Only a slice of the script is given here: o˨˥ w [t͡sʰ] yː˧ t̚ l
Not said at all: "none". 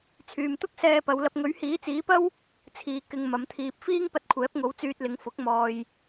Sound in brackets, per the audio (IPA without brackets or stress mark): t͡s